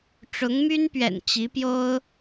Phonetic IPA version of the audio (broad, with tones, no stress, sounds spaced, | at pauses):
ʈ͡ʂ ʊ˧˥ ŋ m y˥ n p ɥ ɛ̰˨˩ n t͡ɕ i˧˥ p j o˥ ʊ̯